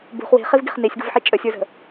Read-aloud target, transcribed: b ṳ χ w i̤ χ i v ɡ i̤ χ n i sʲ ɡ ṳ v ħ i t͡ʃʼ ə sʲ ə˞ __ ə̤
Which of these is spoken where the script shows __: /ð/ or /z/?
z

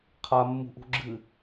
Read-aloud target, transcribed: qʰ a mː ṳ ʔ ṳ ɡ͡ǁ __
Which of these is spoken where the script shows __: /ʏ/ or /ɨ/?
ɨ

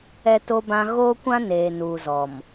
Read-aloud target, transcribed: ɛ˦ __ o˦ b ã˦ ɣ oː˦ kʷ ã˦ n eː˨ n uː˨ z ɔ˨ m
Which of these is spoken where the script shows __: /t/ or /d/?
t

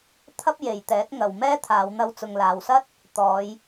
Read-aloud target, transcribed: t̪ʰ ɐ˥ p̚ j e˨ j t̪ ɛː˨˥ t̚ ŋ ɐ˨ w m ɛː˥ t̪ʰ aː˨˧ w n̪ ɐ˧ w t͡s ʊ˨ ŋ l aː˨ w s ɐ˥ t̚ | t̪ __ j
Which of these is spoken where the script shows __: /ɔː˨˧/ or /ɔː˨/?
ɔː˨˧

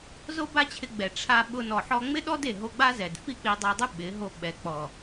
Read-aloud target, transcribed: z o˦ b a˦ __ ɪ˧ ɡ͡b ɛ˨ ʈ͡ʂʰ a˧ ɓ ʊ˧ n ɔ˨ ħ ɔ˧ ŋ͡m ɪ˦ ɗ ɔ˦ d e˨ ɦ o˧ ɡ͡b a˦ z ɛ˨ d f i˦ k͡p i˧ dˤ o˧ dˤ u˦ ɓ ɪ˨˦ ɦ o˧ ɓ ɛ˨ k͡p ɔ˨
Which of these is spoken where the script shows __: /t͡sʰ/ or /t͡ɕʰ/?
t͡ɕʰ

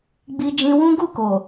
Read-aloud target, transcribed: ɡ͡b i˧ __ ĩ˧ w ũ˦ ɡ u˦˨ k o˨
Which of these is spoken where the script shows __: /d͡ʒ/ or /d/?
d͡ʒ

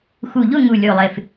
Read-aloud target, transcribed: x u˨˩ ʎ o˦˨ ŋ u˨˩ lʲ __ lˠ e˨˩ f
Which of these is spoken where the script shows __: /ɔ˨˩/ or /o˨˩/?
o˨˩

